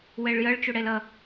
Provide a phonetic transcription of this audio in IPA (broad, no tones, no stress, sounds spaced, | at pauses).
w ɛ ɭ j ʌ ɭ t͡ʃ o ɽ ɛ l ʌ